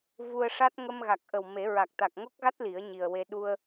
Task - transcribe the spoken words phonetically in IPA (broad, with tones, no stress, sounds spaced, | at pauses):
v u˧ ə̯ ʂ a˦˥ t̚ ŋ ə˧ m ɣ a˨˩ k̚ ʔ ə˨˩ w m e˨˩˦ ɹ a˨˩ k̚ t̪ a˨˩ k̚ ŋ o˦˥ k̚ ɣ a˦˥ t̚ l i˨˩˦ ə̯ ɲ i˨˩ ə̯ w e˧ ɗ u˧ ə̯